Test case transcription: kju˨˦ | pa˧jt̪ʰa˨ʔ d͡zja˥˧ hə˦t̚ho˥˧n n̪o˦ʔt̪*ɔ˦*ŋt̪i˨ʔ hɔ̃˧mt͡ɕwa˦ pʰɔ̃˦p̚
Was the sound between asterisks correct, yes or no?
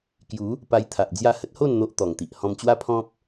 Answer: no